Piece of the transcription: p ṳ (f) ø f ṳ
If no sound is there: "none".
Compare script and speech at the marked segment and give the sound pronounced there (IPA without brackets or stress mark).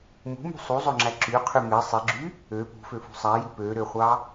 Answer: f